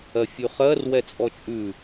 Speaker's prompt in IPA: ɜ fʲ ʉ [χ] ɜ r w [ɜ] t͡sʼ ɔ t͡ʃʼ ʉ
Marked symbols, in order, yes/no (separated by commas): yes, no